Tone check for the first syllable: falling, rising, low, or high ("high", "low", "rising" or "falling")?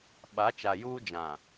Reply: rising